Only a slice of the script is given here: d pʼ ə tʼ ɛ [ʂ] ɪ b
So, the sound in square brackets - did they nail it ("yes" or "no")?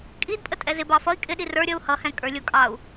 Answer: no